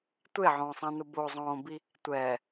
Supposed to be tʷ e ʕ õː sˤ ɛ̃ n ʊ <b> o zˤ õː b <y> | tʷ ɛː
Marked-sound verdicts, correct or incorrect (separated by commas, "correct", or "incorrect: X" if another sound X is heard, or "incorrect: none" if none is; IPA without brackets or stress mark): correct, incorrect: i